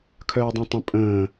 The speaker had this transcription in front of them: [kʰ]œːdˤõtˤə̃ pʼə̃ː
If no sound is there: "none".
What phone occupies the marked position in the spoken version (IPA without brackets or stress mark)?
kʰ